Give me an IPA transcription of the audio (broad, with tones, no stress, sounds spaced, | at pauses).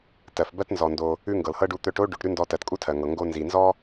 t ɜ˩ f b ɜ˥ t n z ɔ˩ n d o˩ | ʉ˥ ŋ ɡ ɤ˩ l h ɤ˥ ɖ u˧ t̪ œ˧ ʈ o˥ ɖ ʉ˩ ʈ ɾ ʉ˥ n d ɔ˧ t ɜ˩ t kʼ u˥ tʰ ɜ˩ ŋ ɤ˩ ŋ ɡ o˧ n z i˩ n z ɔ˥